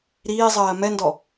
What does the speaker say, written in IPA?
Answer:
ɾ iː zˤ ɜː m ɛ n d ɔ

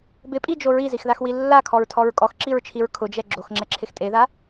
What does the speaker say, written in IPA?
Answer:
b ɪ pʼ i d͡ʒ o ɹ i z i x ð a x w i lː a kʰ ɔ ɹ tʰ ɔ ɹ kʼ ɔ x ǁ i ɹ t͡ʃʰ i ɹ kʰ ʊ d͡ʒ ɛ ɡ͡ǁ o x ŋ͡ǁ ɛ ǁʰ ɪ x tʼ e ð a

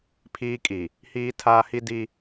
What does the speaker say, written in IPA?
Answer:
pʰ iː˦ kʼ i˨ | h iː˦ tʰ aː˦ h i˦ d i˦

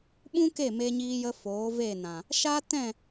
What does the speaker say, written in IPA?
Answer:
ɓ ũ˦ k e˦˨ m e˧ ɲ iː˧ j ə˧ f oː˨˦ v e˦˨ n ã˨ | ʃ a˦ t ɛ̃˦˨

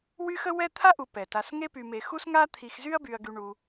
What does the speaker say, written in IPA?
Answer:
w y˥ x ə˥ w ɛ˥ t̪ʰ a˥ ʔ u˨ p ɛ˩ t a˨ s ŋ e˦ p y˨ m e˨ x u˥ s ŋ a˥ t̪ʰ i˨ x z y˥ ɐ̯ b y˨ ɐ̯ ɡ y˨ ɳ u˨

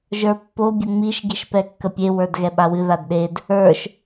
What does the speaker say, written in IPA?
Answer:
ʒ ə˞ pː o bʲ ə ŋ͡m i ʃ ɡ i ʃ p ɛ kː ə pʲ e w ə˞ d ɣ ɛ ɓ a w ɨ ð a d ɗ e d | ə˞ ʃ

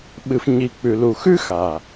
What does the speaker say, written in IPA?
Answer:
ɓ ɨ˨ f ɲ i˨ k͡p ʉ˨ l u˨ x ʉ˦ x a˨

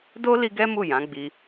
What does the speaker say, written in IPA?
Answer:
d o˦ l i˦ ɡ ɛ˦ m u˦˨ j ã˨˦ ɡ͡b i˧

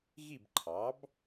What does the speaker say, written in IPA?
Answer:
ɣ i˥˨ b ǃʰ ɑ˩˥ b

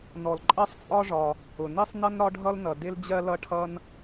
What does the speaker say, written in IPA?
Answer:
n ɔ˩ l ǃʼ ɜ˥ sˤ t͡sʼ ɒ˥ ʐ ɒ˩ | ʊ˩ n i˥ sˤ n ʌ˥ n ɾ ɒ˥ ɖʱ ʌ˥ l n ʌ˩ d ɪ˥ l d͡ʑ ɜ˥ l ʌ˥ ʈʰ ʌ˥ n

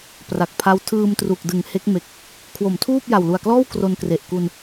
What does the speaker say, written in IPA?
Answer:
p r a˨˩ k̚ pʰ a˦˥ w tʰ ɯː˧ m t r u˨˩ k̚ d ɯ˩˦ ŋ h e˦˥ k̚ m e˨˩ k̚ | kʰ w o˩˦ m tʰ uː˥˩ p̚ j a˨˩ w l u˨˩ a̯ k l ɔː˥˩ w k r o˧ n k r e˨˩ ʔ k u˧ n

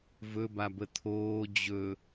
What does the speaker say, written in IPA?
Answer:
v ɵ b a b ə t̪ʰ oː d͡ʑ ɵ

